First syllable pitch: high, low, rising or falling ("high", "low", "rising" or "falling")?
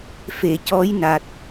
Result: low